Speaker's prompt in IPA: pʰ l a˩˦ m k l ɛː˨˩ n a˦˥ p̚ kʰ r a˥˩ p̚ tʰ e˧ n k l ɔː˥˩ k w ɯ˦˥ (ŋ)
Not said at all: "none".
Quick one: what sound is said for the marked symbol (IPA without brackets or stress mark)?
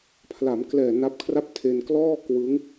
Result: ŋ